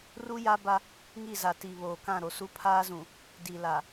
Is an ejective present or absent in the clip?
absent